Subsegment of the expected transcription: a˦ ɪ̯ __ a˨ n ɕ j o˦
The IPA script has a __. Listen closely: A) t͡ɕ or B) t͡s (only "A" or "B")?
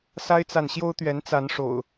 B